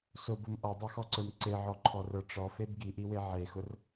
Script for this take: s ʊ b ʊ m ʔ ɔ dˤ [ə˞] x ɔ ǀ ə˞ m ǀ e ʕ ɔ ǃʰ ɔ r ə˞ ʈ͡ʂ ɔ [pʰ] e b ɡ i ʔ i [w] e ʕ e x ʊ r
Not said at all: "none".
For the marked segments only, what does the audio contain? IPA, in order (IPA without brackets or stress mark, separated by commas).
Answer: ə˞, f, w